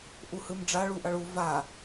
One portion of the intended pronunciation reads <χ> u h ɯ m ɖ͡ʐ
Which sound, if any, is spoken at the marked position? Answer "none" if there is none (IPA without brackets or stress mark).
ʔ